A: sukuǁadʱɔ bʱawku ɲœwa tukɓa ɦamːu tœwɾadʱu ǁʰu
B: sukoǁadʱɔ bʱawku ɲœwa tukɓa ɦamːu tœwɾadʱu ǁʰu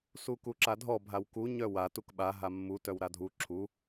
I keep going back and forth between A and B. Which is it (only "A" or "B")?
A